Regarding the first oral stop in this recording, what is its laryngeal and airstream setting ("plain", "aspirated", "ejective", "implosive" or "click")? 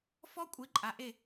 ejective